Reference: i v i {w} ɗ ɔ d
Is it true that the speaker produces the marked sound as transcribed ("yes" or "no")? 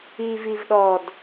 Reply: no